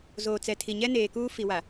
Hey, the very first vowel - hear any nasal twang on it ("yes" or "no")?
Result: no